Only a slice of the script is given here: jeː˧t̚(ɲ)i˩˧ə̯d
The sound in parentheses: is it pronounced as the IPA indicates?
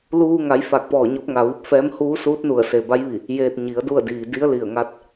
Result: yes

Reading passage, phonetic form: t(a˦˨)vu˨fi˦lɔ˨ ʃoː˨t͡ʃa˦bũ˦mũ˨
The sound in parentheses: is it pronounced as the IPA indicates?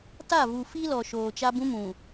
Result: yes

